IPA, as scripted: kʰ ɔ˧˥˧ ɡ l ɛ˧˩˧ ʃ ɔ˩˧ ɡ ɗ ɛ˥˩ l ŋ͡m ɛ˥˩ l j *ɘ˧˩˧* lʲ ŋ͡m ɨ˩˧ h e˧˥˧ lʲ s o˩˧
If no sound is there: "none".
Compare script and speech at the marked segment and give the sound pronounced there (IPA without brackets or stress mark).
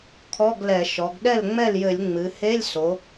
ɘ˧˩˧